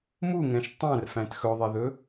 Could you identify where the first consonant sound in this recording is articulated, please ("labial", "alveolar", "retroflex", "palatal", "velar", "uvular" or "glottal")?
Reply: labial